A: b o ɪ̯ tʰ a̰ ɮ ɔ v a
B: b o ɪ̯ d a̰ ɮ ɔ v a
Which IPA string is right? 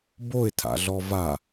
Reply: A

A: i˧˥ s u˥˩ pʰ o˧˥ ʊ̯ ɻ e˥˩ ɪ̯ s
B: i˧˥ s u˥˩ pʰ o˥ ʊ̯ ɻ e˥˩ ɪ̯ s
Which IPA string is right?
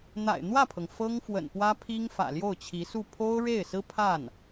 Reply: B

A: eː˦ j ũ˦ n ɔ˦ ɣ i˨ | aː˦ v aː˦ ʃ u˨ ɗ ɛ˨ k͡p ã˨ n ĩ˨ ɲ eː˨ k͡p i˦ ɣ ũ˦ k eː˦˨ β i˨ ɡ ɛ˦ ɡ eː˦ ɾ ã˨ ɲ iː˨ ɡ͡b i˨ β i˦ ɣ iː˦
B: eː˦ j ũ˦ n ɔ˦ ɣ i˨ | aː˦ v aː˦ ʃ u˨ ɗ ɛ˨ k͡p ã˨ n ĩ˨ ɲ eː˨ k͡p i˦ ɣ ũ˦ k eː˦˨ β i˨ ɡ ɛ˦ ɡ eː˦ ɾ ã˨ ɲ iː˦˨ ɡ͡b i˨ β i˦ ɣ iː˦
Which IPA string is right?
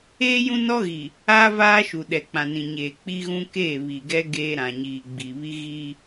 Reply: A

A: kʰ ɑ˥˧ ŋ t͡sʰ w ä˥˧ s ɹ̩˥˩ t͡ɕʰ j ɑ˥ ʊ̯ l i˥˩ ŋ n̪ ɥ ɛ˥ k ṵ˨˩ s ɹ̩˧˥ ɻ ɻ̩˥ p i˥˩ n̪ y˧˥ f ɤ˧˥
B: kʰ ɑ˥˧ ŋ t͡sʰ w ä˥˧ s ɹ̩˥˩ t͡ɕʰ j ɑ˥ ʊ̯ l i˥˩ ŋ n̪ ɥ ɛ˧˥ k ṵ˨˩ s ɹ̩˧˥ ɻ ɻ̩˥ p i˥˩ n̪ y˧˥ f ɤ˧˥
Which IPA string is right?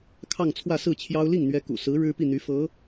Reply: B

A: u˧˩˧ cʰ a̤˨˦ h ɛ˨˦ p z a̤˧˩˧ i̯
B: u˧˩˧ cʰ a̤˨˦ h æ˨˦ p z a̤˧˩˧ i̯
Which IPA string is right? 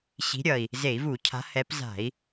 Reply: A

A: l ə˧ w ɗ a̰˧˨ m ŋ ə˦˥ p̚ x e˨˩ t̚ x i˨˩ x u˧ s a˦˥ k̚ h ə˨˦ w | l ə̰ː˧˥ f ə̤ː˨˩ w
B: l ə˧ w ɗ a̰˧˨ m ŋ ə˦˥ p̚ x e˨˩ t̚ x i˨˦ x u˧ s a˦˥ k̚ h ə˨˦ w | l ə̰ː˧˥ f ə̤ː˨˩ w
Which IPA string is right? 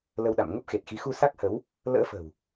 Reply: B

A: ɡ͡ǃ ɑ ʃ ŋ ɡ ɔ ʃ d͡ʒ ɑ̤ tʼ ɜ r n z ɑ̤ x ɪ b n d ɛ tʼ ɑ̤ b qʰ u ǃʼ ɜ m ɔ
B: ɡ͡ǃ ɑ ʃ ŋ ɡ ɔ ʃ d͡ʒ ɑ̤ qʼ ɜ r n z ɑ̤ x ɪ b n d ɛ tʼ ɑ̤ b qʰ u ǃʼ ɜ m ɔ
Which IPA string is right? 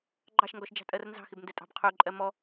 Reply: A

